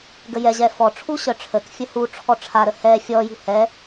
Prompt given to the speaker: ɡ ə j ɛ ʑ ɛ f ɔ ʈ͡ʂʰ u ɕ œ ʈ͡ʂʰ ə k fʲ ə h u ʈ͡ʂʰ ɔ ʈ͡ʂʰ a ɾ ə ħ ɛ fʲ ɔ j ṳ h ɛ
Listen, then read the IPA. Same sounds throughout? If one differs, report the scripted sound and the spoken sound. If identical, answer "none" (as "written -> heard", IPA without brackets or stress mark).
ħ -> h